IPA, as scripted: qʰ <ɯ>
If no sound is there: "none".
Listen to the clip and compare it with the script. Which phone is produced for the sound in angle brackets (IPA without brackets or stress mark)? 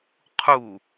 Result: u